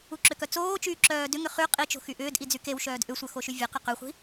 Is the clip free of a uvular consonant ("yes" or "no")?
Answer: no